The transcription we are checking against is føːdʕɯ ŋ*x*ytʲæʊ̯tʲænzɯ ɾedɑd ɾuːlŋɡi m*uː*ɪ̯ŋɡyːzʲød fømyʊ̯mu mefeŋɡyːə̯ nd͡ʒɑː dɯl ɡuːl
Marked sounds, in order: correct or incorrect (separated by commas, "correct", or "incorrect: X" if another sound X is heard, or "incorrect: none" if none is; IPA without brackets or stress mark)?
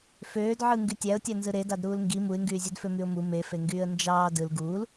incorrect: ɡ, incorrect: u